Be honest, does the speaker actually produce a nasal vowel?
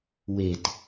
no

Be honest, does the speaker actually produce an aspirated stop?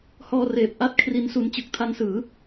yes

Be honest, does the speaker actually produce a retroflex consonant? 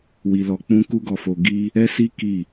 no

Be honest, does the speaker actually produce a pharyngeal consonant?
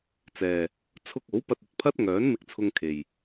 no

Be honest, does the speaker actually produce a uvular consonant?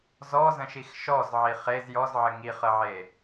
yes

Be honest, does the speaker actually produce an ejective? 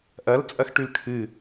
yes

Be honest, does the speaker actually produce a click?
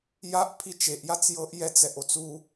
no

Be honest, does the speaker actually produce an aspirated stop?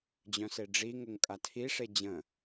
yes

